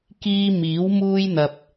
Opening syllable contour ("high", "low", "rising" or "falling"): high